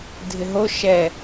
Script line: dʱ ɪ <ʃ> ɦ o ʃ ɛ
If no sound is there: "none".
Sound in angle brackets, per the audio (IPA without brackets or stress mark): none